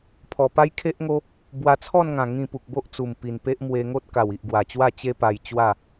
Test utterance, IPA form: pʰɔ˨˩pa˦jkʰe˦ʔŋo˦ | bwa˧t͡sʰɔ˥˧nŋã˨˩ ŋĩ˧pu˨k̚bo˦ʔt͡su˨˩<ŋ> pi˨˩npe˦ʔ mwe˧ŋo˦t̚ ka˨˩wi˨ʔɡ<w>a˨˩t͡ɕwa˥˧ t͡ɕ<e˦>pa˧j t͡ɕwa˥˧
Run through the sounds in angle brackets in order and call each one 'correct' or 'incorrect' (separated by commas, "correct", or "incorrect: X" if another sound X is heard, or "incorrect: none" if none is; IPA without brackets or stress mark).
incorrect: m, correct, correct